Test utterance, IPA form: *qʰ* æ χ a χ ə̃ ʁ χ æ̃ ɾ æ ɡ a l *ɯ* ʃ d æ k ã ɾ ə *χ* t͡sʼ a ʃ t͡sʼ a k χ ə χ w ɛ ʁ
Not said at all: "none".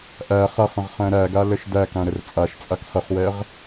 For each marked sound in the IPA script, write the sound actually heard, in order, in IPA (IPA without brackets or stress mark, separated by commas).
ʔ, ə, r